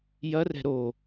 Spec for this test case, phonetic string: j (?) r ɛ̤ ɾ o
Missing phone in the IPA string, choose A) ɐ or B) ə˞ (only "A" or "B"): A